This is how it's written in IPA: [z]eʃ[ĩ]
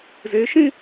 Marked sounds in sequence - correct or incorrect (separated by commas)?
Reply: correct, correct